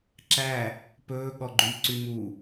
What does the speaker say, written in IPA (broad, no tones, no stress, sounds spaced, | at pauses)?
ǁ æ | p ɵː ɠ ɔ ɡ͡ǃ y ǀ y m u